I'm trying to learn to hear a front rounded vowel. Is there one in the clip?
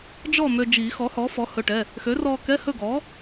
yes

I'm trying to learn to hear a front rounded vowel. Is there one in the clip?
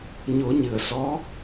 no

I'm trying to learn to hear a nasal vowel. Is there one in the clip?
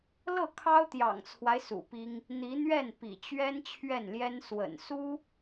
no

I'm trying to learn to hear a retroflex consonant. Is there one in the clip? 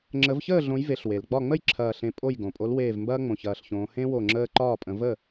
no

